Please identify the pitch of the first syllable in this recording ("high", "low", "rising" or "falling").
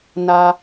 low